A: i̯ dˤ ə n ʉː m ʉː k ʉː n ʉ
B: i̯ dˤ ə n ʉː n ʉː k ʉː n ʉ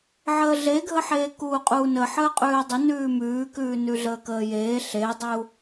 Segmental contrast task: A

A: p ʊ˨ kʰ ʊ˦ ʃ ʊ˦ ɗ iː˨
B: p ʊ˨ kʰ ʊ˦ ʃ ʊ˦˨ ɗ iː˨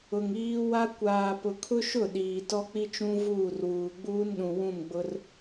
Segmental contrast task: B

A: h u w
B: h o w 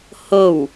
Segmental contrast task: B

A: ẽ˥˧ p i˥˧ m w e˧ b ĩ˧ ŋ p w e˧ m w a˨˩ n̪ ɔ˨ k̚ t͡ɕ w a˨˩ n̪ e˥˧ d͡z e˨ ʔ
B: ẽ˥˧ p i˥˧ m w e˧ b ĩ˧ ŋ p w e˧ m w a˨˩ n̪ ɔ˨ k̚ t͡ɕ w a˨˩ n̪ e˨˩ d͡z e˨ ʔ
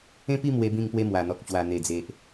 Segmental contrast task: B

